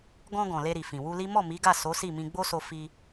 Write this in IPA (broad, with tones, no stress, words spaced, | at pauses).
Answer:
ɡɔ̃˧ ɡɔ̃˨le˧ɾi˨ fĩ˨wu˧li˦ mɔ˦˨mi˨˦ɡa˦˨ so˨˦si˦˨mĩ˧ ɡ͡bo˦so˧ fi˧